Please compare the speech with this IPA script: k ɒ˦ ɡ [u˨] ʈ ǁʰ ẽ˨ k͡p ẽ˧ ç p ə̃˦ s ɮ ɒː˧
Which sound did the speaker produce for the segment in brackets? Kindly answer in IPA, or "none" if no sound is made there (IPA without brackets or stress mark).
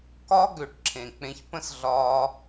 ø˨